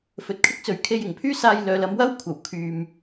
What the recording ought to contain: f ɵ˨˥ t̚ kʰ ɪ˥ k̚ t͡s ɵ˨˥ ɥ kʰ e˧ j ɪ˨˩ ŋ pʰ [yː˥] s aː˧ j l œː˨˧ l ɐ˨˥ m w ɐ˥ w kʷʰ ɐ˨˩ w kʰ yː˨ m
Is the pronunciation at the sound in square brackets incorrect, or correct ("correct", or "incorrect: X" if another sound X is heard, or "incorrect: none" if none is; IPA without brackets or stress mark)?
correct